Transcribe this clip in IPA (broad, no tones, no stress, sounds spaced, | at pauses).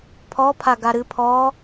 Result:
pʰ ɔ pʰ a ɡ a ɾ ɨ pʰ ɔ